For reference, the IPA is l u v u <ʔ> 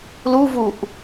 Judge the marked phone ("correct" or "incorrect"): correct